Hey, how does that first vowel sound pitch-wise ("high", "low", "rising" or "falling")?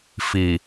low